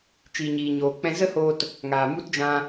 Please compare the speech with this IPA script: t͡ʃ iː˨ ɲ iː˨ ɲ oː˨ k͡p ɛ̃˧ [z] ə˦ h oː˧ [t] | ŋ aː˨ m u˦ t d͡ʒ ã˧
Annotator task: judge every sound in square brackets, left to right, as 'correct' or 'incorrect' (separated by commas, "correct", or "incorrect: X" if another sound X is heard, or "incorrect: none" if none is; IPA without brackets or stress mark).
correct, correct